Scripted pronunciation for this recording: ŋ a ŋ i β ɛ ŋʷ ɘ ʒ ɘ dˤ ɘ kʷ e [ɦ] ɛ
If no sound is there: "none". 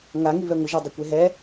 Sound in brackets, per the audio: ɦ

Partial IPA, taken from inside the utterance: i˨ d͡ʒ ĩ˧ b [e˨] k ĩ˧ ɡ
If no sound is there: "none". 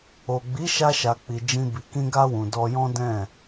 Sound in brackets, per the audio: i˨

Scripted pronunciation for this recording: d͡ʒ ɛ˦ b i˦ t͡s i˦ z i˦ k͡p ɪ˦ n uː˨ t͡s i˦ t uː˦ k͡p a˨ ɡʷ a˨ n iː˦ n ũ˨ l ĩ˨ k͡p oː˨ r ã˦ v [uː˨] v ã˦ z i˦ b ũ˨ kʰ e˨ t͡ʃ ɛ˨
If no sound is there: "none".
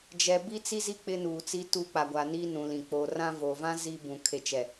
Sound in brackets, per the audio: oː˨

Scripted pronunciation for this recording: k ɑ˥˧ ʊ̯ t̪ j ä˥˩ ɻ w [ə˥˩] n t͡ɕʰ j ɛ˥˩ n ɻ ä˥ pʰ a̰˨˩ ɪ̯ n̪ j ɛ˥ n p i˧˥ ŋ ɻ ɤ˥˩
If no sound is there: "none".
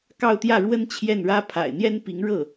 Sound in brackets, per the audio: ə˥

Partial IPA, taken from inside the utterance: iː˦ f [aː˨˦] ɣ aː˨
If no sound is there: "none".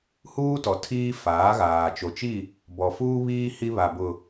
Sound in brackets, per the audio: aː˨˦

